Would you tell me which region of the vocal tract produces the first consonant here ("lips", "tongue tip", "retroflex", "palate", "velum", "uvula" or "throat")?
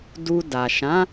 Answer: tongue tip